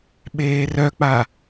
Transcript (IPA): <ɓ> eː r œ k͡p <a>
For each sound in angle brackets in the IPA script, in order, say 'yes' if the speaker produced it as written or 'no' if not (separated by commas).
yes, yes